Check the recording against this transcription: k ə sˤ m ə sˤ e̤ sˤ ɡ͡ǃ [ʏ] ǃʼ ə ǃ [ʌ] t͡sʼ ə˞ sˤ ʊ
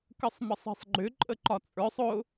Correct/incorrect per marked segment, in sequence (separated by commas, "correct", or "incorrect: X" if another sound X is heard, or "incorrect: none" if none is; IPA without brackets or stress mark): correct, incorrect: ɒ